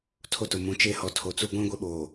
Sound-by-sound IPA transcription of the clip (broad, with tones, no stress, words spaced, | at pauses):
tʰo˦tʊ˨ mũ˨t͡ʃe˦ hɔ˨ tʰo˨t͡su˦ ɡʷĩ˦ ɡʷe˦ɓoː˨